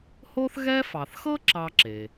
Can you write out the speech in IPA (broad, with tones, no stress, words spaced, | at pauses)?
ho˦θɣɛ˦fɑ˩θxɤ˥ ǁɑ˥ ǁe˩